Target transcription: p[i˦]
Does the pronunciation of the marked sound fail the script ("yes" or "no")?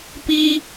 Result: no